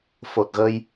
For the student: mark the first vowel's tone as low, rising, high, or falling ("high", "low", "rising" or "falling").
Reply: low